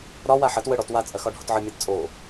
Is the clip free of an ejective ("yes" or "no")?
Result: no